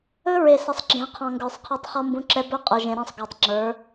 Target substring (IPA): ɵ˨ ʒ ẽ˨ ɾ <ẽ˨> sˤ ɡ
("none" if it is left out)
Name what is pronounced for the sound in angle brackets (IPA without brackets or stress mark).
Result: ẽ˦˨